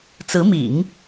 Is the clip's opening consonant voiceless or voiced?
voiceless